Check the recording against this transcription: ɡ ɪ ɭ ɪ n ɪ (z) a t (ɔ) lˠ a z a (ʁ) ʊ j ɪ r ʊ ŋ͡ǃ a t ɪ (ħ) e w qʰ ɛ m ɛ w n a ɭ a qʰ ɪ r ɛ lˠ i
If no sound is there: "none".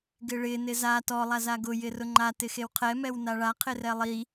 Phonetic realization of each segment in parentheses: z, ɔ, ɡ, x

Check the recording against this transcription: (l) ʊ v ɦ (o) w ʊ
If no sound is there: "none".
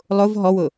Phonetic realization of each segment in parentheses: lˠ, ɔ

